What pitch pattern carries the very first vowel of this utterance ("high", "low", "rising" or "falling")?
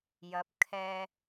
rising